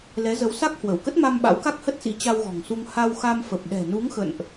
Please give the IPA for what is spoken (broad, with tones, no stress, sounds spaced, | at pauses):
l ɛ˨˦ z ə˨˦ w s a˦˥ k̚ h w ə˧˩ w k ə˦˥ t̚ m a˧ m ɓ a̰˧˥ w k a˦˥ k̚ h ə˦˥ t̚ s ḭ˧˥ t͡ɕ a˧ w ɣ ɔ̤˨˩ ŋ s u˧ ŋ h a˧ w x a˧ m f ə˨˩ p̚ ɗ ɛ̤˨˩ n u˨˦ ŋ x ə̰˧˨ n ʔ